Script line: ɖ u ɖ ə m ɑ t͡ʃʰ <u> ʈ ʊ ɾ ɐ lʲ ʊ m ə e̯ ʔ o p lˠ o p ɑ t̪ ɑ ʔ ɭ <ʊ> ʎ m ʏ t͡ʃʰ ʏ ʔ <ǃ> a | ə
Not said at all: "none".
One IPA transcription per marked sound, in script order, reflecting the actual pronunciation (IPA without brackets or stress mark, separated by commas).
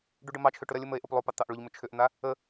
ʏ, ʊ, n̪